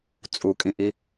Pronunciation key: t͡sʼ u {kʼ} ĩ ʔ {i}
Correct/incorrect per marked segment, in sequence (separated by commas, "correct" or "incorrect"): correct, correct